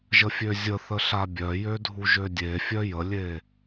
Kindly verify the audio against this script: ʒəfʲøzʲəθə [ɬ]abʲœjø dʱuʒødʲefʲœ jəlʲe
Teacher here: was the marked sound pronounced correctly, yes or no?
yes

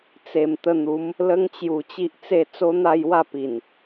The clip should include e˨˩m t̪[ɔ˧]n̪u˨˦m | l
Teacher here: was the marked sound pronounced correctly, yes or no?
no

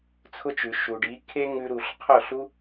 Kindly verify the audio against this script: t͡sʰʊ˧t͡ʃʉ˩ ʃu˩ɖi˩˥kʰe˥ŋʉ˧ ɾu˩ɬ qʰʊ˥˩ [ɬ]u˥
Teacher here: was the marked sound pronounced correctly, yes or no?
yes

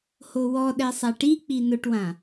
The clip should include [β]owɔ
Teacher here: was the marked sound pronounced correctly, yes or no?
no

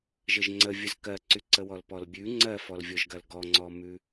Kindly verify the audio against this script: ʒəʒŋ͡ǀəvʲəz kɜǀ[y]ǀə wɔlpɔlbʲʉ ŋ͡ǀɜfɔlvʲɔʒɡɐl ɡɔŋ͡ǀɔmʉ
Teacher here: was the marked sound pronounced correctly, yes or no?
yes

